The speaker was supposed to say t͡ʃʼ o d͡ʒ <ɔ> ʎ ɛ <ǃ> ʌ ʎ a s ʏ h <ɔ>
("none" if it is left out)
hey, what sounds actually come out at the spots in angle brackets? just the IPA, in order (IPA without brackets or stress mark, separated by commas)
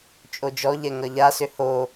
ɔ, ŋ, o